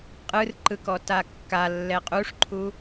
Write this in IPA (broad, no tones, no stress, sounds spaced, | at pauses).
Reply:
qʼ ɯ r ǃ ɯ k ɔ t a kː a lː ɛ qʼ u ʂ ǃʰ u